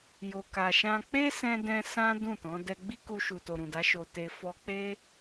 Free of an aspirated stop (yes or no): yes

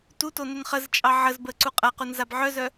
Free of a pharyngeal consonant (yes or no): no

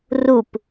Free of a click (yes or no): yes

